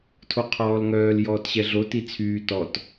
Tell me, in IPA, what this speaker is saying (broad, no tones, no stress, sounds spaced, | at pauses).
tʰ o qʰ ɔː l ŋ œː l j ɔː t ɕ ɛ ɮ o t i t͡sʰ yː t ɔ t